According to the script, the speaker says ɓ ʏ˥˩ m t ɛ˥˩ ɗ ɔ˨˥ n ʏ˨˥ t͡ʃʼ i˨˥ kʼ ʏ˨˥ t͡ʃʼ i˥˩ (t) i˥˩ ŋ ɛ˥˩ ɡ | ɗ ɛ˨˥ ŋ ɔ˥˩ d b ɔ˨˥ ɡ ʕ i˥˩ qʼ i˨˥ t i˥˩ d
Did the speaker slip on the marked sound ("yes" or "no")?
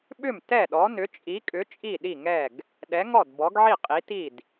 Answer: yes